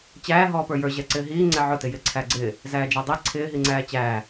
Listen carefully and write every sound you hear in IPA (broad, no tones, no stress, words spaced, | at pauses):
t͡ɕæː ɦɔːpə˞jə˞ ʑɛǀɪːɦiː ŋ͡ǀɛʕʊ tɪjɪ ǀʰæɡ͡ǀɪː | zæːd͡ʒædˤi ǀʰɪː ɦiŋ͡ǀæːt͡ɕæː